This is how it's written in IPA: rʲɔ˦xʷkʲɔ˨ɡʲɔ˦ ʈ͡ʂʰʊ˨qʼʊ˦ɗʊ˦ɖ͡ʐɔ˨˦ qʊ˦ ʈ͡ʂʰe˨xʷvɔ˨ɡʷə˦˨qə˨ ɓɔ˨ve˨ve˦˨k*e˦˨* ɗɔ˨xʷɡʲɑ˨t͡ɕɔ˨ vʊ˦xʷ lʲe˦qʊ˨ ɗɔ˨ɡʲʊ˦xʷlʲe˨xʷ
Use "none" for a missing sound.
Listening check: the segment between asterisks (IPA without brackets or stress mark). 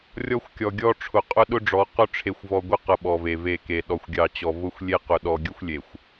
e˨